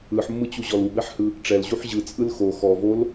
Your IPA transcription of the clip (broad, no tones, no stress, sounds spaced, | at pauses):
ɯ ħ mː ɯ t͡ɕ u ʑ ɔ l u b ɛ ħ h ɯ | ʈ͡ʂ ɛ l ʑ u ħ ʑ ɯ t͡sʼ ɯ l x o x ɔ v o l